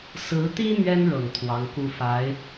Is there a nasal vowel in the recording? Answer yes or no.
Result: no